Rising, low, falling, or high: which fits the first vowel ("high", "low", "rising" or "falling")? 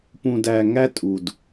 low